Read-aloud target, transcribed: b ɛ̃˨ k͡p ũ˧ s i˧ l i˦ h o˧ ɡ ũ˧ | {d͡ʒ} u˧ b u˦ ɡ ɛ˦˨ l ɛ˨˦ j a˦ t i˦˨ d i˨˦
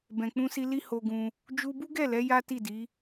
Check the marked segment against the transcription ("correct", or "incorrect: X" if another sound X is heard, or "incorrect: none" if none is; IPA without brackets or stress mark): correct